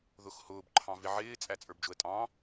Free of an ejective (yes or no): no